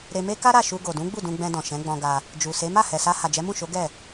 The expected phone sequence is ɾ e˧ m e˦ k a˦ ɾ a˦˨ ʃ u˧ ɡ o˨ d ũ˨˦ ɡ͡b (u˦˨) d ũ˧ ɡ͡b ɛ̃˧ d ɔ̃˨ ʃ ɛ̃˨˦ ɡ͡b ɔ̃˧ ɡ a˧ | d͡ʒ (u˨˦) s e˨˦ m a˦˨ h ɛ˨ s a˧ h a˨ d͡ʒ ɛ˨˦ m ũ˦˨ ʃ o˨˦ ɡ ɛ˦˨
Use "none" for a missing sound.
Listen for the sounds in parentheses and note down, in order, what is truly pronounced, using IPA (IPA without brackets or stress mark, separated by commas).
u˦˨, u˨